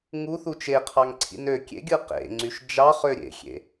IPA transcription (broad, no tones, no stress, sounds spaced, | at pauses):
ŋ u θ u t͡ʃ e qʰ ɑ ŋ ǀʰ ḭ n ø kʲ ḛ ɡʲ ɯ q ḛ ŋ͡ǀ y ʃ d͡ʒ ɑ χ ø ɾʲ ḛ xʲ ḛ